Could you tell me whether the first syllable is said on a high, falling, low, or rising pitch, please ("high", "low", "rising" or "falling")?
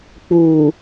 low